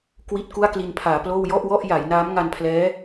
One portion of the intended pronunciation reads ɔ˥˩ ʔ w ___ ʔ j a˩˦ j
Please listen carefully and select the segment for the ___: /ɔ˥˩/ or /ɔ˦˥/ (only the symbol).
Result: ɔ˥˩